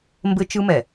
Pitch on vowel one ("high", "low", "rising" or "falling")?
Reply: high